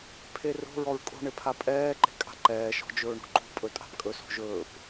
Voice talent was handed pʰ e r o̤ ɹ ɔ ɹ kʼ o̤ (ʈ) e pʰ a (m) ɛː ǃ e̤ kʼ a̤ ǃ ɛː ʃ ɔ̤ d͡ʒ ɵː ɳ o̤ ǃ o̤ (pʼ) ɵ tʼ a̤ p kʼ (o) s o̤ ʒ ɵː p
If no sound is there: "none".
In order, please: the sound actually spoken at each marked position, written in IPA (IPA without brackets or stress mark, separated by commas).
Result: ɳ, pʼ, pʼ, ɵ